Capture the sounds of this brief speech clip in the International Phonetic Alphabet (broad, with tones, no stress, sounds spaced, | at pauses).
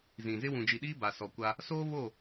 z ĩ˨ z ɪ˦ w ũ˨ d͡ʒ i˨ ɗ iː˦ b a˨ s ɔ˨ kʷ a˦ | s oː˦ β o˦˨